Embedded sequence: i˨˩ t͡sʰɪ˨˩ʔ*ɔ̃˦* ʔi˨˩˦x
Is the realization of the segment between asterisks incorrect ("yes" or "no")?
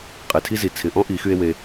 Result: no